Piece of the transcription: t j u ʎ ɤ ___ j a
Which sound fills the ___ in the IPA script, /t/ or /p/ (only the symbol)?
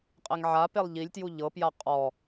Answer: p